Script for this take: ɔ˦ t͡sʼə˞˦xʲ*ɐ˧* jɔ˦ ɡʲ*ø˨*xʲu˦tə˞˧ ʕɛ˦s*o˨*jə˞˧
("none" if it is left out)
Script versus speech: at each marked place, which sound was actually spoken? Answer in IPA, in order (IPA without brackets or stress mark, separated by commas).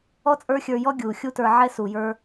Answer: ə˞˧, u˨, u˨